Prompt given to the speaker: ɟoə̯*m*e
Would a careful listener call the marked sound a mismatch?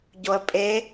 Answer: yes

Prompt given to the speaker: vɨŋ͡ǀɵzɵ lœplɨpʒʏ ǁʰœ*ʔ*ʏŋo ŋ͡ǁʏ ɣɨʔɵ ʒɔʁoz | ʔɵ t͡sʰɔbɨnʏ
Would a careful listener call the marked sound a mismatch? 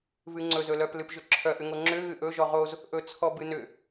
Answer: no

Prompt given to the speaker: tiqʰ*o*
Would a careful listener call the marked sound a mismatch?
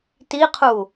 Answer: yes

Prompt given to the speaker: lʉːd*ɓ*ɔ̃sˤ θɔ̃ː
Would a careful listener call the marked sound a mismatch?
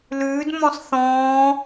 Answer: yes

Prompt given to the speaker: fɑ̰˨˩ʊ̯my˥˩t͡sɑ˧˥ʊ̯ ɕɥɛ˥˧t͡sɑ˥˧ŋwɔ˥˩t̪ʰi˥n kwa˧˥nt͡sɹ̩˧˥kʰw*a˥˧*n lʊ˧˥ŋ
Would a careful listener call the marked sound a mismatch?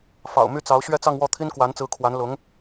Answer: yes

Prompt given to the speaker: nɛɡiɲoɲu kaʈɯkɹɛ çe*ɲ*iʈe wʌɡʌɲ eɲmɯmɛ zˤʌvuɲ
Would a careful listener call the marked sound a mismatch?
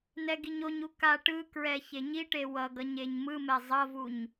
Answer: no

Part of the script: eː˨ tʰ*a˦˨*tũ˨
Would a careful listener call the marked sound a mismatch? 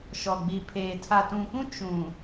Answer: yes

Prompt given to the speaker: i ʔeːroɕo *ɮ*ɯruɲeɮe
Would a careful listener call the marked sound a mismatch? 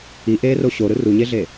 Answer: yes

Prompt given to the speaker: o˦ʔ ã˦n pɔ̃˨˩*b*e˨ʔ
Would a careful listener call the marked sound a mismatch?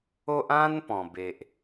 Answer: no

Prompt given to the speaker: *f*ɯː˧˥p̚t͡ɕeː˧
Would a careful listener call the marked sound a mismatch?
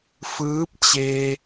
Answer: no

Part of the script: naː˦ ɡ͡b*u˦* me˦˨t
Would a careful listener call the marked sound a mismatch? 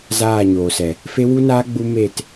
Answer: no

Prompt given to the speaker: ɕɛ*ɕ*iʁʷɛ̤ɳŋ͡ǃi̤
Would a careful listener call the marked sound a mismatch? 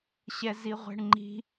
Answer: yes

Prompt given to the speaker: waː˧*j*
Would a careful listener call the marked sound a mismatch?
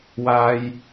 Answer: no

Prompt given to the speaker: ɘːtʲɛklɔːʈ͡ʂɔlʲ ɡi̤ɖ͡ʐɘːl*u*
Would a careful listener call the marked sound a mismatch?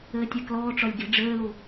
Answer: no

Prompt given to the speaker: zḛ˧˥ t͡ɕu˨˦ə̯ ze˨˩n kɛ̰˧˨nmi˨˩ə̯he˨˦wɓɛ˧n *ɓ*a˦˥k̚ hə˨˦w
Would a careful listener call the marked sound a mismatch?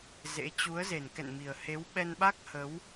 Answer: no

